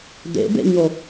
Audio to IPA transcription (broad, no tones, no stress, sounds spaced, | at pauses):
d̪ ḛ b ḛ ɲ o